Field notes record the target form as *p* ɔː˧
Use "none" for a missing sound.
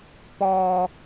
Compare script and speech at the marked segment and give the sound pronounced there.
p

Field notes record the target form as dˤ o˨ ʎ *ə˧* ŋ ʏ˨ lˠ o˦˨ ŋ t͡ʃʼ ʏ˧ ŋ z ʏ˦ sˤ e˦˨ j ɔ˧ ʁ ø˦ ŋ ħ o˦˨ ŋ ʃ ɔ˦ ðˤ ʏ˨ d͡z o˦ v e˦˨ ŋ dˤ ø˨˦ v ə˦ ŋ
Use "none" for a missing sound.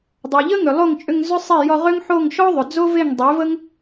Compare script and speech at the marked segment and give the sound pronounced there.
ə˦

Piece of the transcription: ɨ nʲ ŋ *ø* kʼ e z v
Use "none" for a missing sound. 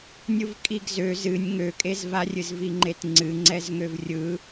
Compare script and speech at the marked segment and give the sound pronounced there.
ø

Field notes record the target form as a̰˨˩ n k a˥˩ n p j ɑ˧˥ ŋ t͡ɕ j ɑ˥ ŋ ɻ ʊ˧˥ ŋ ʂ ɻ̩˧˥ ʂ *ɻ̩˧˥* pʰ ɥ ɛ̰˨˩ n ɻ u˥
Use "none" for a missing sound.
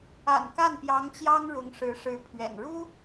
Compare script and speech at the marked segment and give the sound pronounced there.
ɻ̩˧˥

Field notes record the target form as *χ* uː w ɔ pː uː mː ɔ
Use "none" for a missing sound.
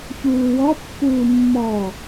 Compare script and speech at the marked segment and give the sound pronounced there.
ç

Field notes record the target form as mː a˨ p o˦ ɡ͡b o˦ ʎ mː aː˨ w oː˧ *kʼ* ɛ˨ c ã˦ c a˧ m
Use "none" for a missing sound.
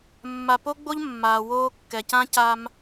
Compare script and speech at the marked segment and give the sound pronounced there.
kː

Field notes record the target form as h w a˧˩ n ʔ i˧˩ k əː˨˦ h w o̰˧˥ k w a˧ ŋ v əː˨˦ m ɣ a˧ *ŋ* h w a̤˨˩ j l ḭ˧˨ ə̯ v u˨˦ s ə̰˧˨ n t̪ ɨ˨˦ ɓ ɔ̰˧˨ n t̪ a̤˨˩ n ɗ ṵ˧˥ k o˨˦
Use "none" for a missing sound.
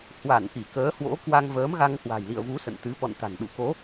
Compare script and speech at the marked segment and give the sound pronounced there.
ŋ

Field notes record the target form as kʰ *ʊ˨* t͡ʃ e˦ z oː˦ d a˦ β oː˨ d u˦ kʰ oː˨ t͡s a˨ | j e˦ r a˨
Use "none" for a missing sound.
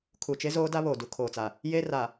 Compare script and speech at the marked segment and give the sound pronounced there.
u˨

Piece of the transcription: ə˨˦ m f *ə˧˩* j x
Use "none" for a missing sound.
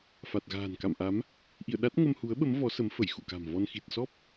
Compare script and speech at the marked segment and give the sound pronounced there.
ə˧˩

